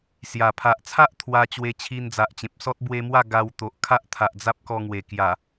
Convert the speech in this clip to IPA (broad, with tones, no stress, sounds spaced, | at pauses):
s j a˨˩ pʰ a˨ ʔ t͡sʰ a˦ ʔ t̪ʰ w a˧ t͡ɕ w e˧ t͡ɕʰ i˧ n d͡z a˨ ʔ t͡ɕ ẽ˨ p̚ s ɔ˦ t̚ b w e˧ m w a˥˧ ɡ a˧ w t̪ o˨ ʔ kʰ a˦ ʔ t̪ʰ a˨ ʔ d͡z a˦ p̚ k ɔ˧ ŋ w e˨˩ k j a˨˩